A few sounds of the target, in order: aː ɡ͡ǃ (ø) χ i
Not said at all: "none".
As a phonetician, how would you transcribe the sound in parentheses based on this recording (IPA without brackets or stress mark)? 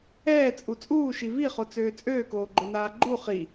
u